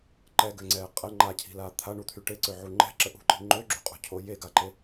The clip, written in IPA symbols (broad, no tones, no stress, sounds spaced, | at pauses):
ǃ ɛ ɡ ø ŋ͡ǀ ɛː qʼ ə ŋ͡ǃ a cʰ i̤ l aː t̪ʰ a ɳ u t̪ʰ y ʈ e ǀ ø ʕ u ŋ͡ǃ ɛ̤ ǁ ə ʔ ṳ ǃ i̤ ŋ͡ǃ ø ɡ͡ǁ ṳ qʼ ṳ cʰ o j e ɡ a ǃ e